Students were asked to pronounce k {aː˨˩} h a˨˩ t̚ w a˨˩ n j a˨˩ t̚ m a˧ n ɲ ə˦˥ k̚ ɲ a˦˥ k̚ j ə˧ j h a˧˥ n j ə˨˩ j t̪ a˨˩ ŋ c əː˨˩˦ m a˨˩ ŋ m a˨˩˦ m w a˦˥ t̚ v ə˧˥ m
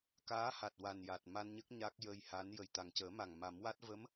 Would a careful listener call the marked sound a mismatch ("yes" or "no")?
yes